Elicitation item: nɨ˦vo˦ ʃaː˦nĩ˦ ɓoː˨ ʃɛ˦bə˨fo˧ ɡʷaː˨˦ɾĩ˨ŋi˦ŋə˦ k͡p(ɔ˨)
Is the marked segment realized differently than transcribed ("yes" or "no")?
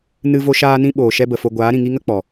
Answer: no